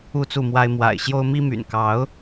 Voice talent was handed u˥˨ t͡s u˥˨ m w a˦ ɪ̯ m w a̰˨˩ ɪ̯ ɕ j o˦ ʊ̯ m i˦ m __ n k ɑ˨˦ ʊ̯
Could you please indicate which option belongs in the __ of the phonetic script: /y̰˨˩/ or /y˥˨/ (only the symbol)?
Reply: y̰˨˩